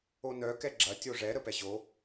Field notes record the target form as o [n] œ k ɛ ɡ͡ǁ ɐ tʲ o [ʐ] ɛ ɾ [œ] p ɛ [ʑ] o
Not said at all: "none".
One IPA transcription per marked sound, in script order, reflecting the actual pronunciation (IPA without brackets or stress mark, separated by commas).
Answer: n, ʐ, ə, ʑ